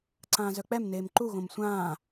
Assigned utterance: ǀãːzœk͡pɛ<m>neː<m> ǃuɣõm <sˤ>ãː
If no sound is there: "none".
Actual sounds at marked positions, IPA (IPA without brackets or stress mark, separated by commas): m, m, sʷ